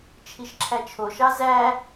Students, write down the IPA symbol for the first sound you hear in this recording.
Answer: t͡ʃʰ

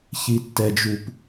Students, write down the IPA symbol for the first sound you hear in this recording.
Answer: ç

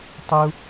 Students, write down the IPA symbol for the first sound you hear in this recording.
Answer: tˤ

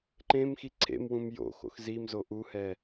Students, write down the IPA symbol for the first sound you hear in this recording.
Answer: ǃ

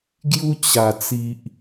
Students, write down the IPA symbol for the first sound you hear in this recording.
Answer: ɡ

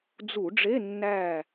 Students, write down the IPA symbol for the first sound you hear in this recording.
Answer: d͡z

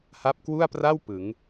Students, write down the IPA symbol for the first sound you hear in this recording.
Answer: h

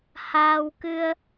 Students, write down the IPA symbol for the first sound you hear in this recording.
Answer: h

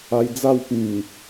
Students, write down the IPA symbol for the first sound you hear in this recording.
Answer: a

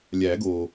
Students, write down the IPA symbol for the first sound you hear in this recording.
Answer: lʲ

